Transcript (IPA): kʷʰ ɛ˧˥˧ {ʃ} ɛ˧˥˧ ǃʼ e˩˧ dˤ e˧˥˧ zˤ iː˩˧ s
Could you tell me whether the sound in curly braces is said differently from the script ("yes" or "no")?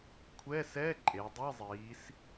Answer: yes